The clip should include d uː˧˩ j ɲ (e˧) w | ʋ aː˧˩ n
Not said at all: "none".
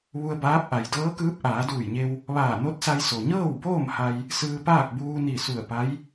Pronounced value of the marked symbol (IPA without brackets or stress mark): e˧